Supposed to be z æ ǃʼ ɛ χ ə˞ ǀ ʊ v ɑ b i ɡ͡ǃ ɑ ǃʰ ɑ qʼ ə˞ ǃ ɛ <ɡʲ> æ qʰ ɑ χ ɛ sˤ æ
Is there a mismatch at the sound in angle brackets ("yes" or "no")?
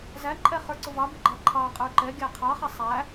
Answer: no